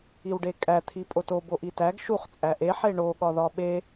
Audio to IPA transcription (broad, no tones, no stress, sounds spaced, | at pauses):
i w ɖ e kʼ æ t̪ʰ i pʼ o t o b o ʔ i t æ ɡ ʃ u χ t͡sʼ æ ʔ e ħ e ɳ o ɠ ɒ ð ɒ ɓ e